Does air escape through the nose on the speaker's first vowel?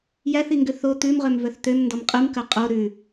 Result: no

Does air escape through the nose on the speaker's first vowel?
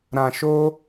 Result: yes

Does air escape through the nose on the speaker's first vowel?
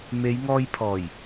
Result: no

